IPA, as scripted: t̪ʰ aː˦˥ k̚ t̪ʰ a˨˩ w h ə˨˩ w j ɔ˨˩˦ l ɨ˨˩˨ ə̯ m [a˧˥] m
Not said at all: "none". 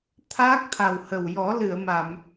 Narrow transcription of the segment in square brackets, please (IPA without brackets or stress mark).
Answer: a˨˩˨